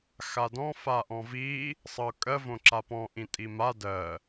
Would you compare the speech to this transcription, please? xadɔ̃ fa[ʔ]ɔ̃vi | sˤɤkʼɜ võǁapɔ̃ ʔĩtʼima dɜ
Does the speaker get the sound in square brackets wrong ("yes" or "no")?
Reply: no